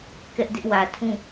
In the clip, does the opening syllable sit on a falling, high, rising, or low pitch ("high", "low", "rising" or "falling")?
high